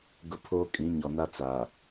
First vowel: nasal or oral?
oral